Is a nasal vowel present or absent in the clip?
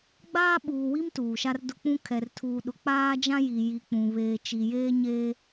present